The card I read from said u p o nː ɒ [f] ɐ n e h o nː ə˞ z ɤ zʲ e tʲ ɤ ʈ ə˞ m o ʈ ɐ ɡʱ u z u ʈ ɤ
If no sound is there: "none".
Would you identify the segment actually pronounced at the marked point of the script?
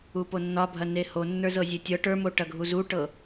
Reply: bʱ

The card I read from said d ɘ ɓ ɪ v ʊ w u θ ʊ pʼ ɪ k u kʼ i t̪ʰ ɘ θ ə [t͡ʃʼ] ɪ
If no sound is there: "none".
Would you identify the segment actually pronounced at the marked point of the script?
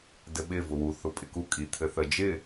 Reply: d͡ʒ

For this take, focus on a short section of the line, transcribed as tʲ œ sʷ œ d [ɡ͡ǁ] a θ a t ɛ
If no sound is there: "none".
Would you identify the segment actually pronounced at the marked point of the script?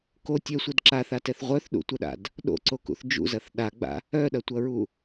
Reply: ǁ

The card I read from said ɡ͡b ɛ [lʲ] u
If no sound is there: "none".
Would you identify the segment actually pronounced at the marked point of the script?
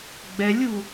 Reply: lʲ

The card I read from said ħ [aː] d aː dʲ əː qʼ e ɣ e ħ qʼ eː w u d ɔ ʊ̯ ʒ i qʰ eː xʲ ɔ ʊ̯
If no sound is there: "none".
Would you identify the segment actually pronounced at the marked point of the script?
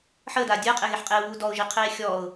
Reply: əː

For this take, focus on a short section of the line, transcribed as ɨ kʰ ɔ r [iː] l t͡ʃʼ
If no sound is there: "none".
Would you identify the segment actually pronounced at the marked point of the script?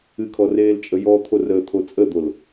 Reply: eː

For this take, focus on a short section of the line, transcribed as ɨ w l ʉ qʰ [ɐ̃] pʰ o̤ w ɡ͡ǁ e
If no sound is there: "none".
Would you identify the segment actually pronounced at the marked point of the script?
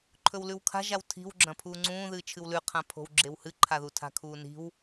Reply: ã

